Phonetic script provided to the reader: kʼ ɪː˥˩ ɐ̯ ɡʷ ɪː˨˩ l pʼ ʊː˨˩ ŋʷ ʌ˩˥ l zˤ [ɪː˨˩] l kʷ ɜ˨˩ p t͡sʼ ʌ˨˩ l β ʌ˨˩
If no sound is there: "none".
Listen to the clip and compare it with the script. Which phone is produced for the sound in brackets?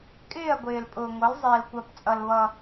ɪː˨˩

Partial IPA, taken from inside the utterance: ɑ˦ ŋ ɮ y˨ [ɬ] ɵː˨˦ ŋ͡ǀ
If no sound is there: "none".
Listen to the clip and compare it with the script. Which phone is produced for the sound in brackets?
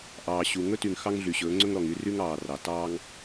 ɕ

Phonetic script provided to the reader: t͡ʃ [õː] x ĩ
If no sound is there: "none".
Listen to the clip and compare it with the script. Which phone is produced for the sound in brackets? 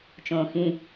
õː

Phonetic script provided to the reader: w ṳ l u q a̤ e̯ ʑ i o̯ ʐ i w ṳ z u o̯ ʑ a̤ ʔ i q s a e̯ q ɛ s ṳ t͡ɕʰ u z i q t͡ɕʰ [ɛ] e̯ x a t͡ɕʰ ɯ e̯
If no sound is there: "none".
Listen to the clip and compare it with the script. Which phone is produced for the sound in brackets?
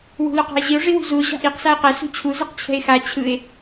ɛ̤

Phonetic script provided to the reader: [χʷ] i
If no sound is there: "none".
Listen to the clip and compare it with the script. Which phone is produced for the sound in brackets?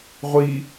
ʁʷ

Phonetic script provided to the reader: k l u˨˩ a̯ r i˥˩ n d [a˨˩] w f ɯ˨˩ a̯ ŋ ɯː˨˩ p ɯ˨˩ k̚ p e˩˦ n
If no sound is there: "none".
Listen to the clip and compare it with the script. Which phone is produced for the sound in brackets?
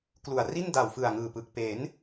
a˨˩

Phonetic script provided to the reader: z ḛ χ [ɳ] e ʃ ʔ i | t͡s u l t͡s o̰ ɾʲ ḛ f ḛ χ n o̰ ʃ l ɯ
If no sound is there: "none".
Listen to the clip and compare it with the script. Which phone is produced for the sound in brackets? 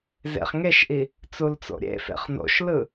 ŋ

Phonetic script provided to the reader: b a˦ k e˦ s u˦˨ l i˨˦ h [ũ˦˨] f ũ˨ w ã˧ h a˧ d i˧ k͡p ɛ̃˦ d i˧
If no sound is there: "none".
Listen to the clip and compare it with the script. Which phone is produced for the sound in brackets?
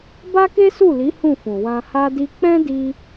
ũ˦˨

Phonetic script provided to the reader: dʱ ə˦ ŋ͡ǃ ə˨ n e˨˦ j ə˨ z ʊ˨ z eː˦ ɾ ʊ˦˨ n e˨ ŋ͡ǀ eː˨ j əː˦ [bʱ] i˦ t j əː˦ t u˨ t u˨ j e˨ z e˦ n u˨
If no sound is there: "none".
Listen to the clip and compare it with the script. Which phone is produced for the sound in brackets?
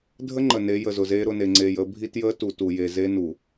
bʱ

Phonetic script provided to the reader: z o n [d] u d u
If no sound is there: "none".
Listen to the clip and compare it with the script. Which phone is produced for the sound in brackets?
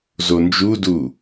d͡ʒ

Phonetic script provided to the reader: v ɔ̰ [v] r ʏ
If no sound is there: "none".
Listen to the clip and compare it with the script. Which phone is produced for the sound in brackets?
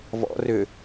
none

